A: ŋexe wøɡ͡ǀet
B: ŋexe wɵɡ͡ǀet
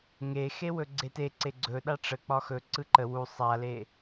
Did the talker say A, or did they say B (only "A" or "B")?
B